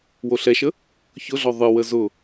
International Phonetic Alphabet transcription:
w o ɬ ɛ ʃ ə | ç ʊ ɮ ɔ ðˤ ɨ w ə z ʊ

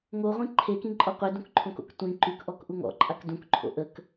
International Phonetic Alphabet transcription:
ŋ o ʁʷ ĩ ǃʰ e k ĩ ǃʼ ɔ qʷ e d ũ k ǃʰ õ k o̰ k tʷ ĩ ǃ y k ʔ ɔ k ʔ u ŋ ɔ̰ ǃʼ a k d ũ k ǃʰ o̰ ʔ ə k

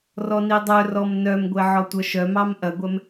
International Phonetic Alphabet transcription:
r ɔ n i dˤ œ r ɔ m n œ m ɡʷ e ʕ ɔ tʷ œ ʃ œ m ɑ m ʔ ɐ ɡʷ ɛ m

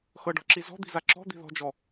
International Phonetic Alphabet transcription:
x ɤ ɖ ɔ̤ ǁ i z ɔ̤ d̪ i̤ z a ǁ ɔ̤ d̪ i̤ ð ɔ̤ d͡ʒ ɔ

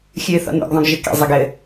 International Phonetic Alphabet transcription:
xʲ ɨː θ ɔ̰ n o̰ ɡ ðˤ õ ɡ ʒ ɘ k ḛ zˤ e ɡ ɘ

